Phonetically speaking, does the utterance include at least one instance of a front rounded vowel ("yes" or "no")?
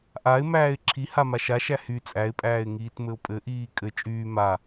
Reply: yes